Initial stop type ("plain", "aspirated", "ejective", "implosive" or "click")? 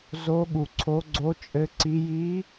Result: implosive